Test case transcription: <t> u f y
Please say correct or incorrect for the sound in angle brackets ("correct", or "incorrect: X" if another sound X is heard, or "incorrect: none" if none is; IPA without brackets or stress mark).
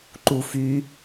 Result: incorrect: ǃ